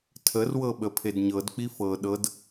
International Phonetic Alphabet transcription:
tʰ ə r w ɤ ɓ ə pʰ e d ɲ ɤ d k͡p i f ɤ ɗ ɤ d

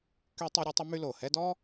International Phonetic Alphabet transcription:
k y˦ tˤ ø˦ ɾʲ a˥ tˤ ə˥ m y˦ l o˩ h ɛ˦ d ɔ˥

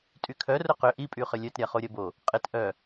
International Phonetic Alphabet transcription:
tʼ y kʰ œ r ʊ q ʏ ʔ i pʼ y χ ə lʲ œ t ɾʲ a χ o ɾʲ ɐ b o | qʼ ɪ t ʔ œ

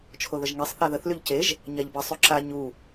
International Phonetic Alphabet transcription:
t͡ʃʰ o ð ə ʒ ŋ e sˤ θ a ð ə θ l y ʎ c e ʒ | ɲ a ʎ b ə sˤ y ǁ a ɲ u

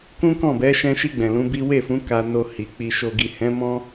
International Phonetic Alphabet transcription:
k ũ˦ k ɔ̃˦˨ b ɛ˨˦ ʃ ɛ̃˧ ʃ i˧ ɡ͡b ɛ̃˨ l ũ˨˦ b i˦ w e˦˨ f ũ˨˦ k a˧ n o˧ h i˨ k͡p i˨ ʃ o˨ ɡ i˨ h ɛ̃˨˦ m ɔ̃˦

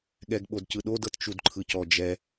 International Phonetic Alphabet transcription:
ɠ ɛ ɡ ɓ o d c ɯ ɗ o d ɤ t t͡ʃ u d ǃʰ ɯ c ɔ d͡ʒ ɛ

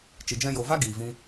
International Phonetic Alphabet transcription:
t͡ʃ i˨ d͡ʒ ɛ̃˧ j o˨ v a˦ ɡ iː˨ v ĩ˧

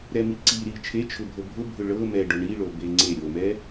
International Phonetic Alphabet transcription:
ɾ ɛ m i ǀ i ɾ i t͡ʃʰ e t͡ʃʰ ʊ bʱ ɤ bʱ ʊ bʱ ʊ ɭ ɤ m ɛ ɖ ʊ ɳ i ɭ o b e ŋ͡ǀ e ɾʲ o m ɛ

